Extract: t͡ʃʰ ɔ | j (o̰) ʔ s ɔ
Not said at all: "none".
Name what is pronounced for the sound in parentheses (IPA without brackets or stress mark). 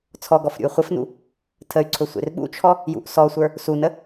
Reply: ṵ